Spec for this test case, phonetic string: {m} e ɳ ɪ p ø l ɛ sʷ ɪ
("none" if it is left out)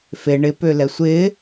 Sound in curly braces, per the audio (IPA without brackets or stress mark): f